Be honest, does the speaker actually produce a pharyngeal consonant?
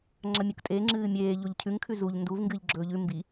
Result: no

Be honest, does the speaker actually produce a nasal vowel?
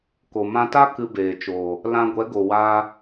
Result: yes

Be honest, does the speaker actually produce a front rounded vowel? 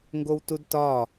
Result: no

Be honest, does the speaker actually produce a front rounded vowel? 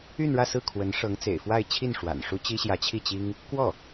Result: yes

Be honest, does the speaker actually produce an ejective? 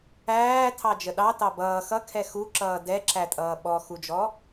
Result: yes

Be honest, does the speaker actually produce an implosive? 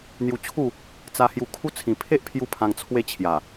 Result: no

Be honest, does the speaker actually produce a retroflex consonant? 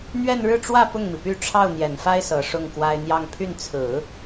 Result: yes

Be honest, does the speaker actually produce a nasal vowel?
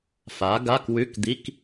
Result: no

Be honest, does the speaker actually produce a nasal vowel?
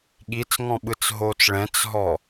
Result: yes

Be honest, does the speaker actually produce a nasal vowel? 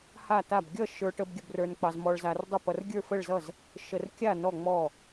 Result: no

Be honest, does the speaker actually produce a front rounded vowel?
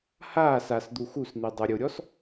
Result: no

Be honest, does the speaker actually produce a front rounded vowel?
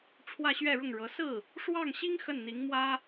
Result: no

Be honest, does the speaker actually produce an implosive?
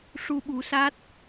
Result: yes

